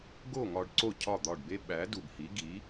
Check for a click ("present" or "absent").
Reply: present